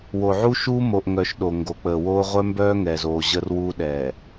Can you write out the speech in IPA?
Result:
wo˨ʕu˦ʃuː˦ mo˨ʔŋœ˨ʃ ɗo˨ ŋɡo˨k͡pəː˨woː˦ ʁʷœ˦mbœː˦ ŋɛː˨zoː˨ʑəː˦rwuː˦ ɗɛː˨

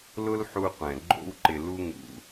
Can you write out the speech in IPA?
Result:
lʊ˦lħu˧qʷɛ̃˨ ɡ͡ǃo̰˧wǃɪ˨lu˧ ŋṵ˨

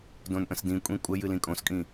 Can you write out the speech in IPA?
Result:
dõnʔə̃sdĩkʷʼĩ kʷʼəj ɨlĩkʼõskʼĩ

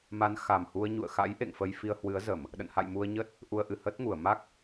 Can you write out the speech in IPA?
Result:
ma˨˦n xa˨˩mhu˧ə̯ ɲṵ˧˨ə̯xa̰˧˥j ʔḛ˧˨ŋfə˧j fi˧ə̯hwɨ˨˦ə̯zə˧˩˨m | ɗə̰˧˨nha̰˧˨j mu˧ə̯ɲə˦˥t̚ | ʔu˧ə̯ʔɨ˧˩ həː˦˥t̚ŋu˧˩ə̯ ma˦˥k̚

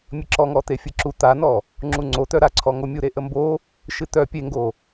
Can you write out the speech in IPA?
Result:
mʲəǁɔŋɔt̪e fʲɨǁu t̪anɔ | ŋ͡ǁuŋ͡ǀot̪œ ɾaǀʰɔŋomʲu ɾeʔəmbo | ʃɨt̪œ pʲeŋɡo

